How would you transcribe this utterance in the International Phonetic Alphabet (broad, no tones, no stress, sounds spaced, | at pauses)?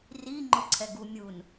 r i ŋ͡ǃ ʊ ǀʰ ɛ ɡ u mʲ u n